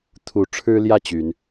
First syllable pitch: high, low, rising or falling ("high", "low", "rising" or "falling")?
rising